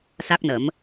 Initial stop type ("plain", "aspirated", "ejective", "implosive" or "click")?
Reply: plain